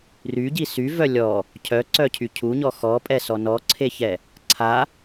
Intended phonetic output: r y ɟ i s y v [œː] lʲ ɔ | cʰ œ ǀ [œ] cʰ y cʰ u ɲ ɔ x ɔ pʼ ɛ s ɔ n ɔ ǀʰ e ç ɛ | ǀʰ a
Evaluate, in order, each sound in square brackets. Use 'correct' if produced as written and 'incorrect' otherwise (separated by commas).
incorrect, correct